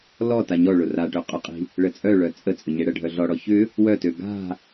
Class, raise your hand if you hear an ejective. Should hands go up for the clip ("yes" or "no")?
yes